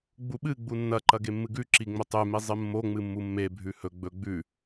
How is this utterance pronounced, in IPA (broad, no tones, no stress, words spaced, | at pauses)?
ɡ͡buɓɨ ɡ͡bunːɐ ǃɐɡemːɨɡʉ ǁiŋ͡mɵtˤʉ mizˤɨmːo ŋ͡mɨmːumːe bʱʉhɵ ɡ͡bɵ ɡ͡bʉ